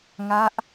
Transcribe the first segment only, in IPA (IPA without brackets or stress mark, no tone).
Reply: ŋ